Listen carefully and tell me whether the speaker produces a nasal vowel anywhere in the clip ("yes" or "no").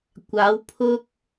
no